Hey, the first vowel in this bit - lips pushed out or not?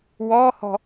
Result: yes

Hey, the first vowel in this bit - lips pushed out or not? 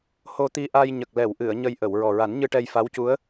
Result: yes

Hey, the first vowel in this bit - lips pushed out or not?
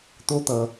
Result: yes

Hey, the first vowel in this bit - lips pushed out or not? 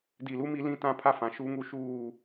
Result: no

